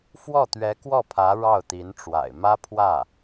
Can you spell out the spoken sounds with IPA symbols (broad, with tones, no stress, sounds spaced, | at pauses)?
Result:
f w ɔ˥˩ t̪ ɥ ɛ˧˥ k w ɔ˥˩ pʰ ä˧˥ ɻ ɑ˥˩ ʊ̯ t̪ i˧˥ n ʈ͡ʂ w a̰˨˩ ɪ̯ m ä˥ pʰ w ä˥˩